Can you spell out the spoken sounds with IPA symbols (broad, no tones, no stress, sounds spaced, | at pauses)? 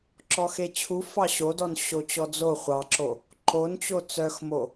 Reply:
ǁ ɔ x e t͡ɕʰ u f ɑ ɕ o d ɔ n ɕ o t͡ɕ ɔ d͡z o χʷ ɑ ǁ o | ǃ o n t͡ɕ o t͡s œ x m o